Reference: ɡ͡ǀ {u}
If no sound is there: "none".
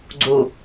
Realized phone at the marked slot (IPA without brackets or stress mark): u